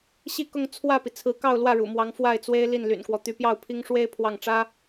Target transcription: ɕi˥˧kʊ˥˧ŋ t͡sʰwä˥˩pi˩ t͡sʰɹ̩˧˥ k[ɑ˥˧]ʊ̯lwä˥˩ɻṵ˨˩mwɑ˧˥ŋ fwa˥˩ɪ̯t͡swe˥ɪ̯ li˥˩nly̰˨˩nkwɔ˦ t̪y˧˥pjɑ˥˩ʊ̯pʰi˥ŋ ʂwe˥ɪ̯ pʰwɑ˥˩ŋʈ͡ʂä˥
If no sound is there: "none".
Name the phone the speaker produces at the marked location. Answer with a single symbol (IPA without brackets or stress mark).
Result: ɑ˥˧